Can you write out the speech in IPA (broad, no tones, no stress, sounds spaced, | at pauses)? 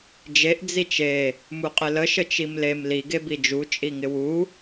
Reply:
d͡ʒ e ʔ d͡z i t͡ʃ e | m u qʼ ɪ l ə ʃ ə t͡ʃ i m l e m l i ɡ e b i d͡ʒ u t͡ʃʼ i ŋ ɪ w u